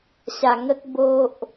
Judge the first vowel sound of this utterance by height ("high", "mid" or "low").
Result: low